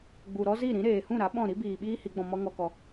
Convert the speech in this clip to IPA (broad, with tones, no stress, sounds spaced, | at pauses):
ɡ͡b u˨ ɾ ɔ˦ z i˦˨ ɾ ĩ˨˦ ɾ eː˨ h ũ˦˨ ɾ a˨˦ ɓ ɔ̃˦˨ ɾ i˦ b iː˨ ɓ iː˦ h i˨˦ ɡ͡b ɔ̃˧ m ɔ˦ ŋ ɔ˧ k ɔ˧